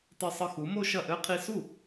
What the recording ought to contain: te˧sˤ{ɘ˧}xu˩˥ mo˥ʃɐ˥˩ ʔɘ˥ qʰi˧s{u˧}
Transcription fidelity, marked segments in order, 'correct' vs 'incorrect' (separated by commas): correct, incorrect